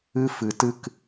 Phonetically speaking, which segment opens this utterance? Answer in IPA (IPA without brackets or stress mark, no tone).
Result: ɨ